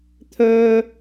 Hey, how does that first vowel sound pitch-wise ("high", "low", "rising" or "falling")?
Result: high